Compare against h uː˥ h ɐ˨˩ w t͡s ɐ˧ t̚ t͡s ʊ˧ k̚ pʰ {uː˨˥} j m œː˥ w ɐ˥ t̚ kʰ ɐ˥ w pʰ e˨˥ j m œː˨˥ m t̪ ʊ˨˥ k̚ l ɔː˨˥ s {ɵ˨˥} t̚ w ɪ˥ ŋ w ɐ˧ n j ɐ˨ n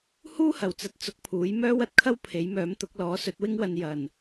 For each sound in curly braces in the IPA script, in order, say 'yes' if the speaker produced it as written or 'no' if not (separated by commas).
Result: yes, yes